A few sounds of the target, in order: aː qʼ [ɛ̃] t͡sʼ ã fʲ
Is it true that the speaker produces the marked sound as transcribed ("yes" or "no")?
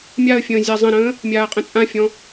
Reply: no